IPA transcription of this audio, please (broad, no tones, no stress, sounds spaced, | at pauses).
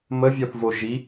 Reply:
m ə vʲ ɔ θ v o ʒ i